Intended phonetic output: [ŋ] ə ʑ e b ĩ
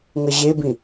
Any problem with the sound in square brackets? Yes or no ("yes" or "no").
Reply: no